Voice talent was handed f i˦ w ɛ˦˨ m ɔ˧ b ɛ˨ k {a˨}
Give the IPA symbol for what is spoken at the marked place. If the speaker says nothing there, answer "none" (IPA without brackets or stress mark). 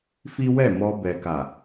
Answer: a˨